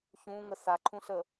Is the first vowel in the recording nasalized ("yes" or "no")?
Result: yes